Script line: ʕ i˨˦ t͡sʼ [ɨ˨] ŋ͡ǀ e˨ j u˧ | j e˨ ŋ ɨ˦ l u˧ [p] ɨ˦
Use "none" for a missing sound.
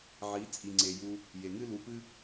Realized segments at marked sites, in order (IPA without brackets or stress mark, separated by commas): i˨, p